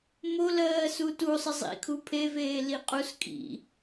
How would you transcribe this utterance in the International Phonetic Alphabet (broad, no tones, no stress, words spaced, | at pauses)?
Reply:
mo lɜːsutu sˤəzˤḭkʰu pʰeveː liqʼus kʼḭ